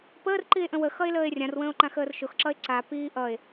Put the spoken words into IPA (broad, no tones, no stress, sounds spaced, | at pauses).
p əː r ǃ i e̯ ʔ ə̃ w ə x ʌ e̯ l əː e̯ rʲ ã r w ə̃ː o̯ ǃ ã x əː r ʃ ʊ x ǁ ʌ e̯ ǀ a p iː ʔ ʌ e̯